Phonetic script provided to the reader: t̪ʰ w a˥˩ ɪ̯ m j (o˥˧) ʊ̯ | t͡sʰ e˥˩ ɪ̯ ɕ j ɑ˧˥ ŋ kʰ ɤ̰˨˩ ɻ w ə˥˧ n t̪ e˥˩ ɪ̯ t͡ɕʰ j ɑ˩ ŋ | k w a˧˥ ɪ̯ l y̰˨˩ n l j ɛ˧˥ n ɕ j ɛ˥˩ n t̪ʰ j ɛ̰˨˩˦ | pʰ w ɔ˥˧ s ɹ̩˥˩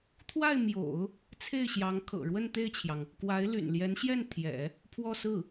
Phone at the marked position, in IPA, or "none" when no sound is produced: o̰˨˩˦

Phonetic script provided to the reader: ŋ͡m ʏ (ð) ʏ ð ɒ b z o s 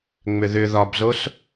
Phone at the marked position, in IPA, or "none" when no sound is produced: ð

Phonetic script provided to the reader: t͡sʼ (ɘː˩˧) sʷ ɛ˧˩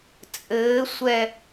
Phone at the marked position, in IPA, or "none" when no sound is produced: ɘː˩˧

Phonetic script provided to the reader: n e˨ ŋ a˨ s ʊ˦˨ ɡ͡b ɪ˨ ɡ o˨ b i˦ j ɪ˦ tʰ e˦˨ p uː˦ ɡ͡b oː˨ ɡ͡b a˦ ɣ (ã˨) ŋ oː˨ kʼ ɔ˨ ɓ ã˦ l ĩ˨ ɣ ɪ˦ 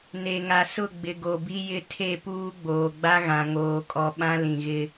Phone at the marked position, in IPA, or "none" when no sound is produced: ã˨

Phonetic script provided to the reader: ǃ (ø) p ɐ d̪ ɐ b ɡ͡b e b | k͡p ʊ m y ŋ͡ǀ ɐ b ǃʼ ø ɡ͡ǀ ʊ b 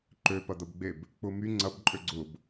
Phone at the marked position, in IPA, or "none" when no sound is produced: ø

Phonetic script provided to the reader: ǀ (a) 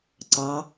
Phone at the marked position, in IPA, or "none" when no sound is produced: ɑ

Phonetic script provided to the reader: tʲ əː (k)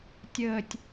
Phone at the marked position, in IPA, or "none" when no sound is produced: tʲ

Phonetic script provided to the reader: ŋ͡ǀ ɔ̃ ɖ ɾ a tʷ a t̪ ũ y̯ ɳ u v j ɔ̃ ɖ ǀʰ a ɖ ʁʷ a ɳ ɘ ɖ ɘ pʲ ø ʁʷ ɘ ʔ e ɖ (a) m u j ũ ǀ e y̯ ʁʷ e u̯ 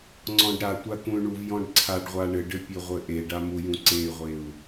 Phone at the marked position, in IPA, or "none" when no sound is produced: a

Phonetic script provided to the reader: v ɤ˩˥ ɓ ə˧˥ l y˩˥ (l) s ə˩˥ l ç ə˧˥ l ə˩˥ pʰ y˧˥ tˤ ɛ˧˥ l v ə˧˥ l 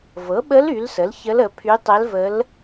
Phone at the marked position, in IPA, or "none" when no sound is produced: l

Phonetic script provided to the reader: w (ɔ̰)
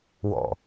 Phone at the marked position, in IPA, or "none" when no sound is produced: ɔ̰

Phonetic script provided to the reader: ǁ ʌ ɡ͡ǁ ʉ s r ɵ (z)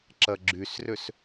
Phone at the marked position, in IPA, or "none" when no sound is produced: s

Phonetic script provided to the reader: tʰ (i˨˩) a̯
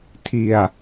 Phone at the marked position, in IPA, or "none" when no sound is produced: i˨˩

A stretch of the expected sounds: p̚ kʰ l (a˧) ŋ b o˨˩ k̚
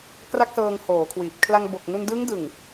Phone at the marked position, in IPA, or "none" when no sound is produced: a˧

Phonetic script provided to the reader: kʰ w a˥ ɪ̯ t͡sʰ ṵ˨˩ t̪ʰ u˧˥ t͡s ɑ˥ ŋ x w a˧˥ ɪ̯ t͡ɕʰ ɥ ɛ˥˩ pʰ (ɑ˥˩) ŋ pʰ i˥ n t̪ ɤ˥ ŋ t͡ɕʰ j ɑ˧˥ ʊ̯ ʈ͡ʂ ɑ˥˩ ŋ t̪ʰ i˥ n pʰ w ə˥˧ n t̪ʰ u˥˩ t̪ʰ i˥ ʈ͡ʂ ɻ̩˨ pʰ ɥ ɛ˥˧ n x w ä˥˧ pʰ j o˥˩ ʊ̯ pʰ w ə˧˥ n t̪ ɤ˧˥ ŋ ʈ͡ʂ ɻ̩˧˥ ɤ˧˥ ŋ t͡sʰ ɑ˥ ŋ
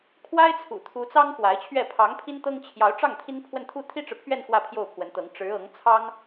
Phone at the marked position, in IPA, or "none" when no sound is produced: ɑ˧˥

